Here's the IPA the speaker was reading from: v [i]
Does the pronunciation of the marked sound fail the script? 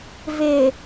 yes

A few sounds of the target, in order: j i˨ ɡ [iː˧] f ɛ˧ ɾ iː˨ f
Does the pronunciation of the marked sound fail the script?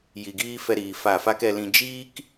yes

